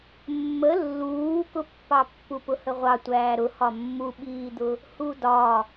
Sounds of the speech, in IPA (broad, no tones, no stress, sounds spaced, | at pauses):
mː ə lː uː k ʊ pː ɑ pː u p ʊ h ə ʁʷ ɑ tʷ æː ɾ ʊ h ɒ mː u ɓ iː d̪ ʊ | h u d ɒ